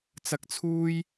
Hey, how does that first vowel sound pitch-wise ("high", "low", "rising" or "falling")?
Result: high